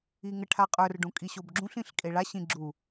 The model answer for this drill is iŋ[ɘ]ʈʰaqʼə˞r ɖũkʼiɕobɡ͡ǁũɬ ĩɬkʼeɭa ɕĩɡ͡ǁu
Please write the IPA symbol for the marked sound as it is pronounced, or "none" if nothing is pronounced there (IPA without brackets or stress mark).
ɘ